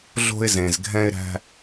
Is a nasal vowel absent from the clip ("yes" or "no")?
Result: no